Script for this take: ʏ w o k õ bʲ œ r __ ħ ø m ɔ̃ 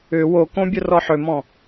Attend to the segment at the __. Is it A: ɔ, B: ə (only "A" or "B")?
A